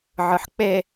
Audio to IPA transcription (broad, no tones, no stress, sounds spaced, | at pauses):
ʕ ɯ ħ k͡p e